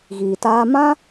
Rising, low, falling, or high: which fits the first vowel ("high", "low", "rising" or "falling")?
low